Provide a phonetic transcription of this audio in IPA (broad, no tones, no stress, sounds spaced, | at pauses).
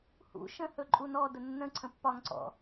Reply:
h ṵ ʃ ə̃ h ɵ ǃʼ u n ɔ d ə nː ə̃ ǀʰ ə̃ pː ɒ ŋ ǀ ɔ̰